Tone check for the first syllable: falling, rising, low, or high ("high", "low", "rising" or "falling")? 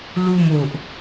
falling